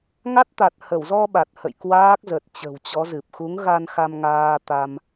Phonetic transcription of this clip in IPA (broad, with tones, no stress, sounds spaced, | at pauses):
ŋ a˦˥ t̚ t̪ a˨˩ t̚ h ə˧˩ w z ɔ˧ ɓ a˨˩ t̚ h ə̰˧˨ j k w aː˦˥ k̚ z ə˨˩ t̚ t͡ɕ ə̤˨˩ w t͡ɕ ɔ˨˦ z ɨ˨˩ p̚ x u˨˦ ŋ ɣ a˧ n x a˧ m ŋ aː˧ t̪ a˧ m